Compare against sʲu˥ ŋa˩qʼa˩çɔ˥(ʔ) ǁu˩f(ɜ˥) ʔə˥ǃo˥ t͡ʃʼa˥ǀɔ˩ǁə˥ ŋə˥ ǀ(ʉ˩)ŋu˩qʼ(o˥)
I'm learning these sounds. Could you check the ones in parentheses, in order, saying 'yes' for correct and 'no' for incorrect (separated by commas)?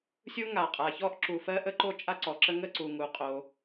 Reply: yes, yes, no, no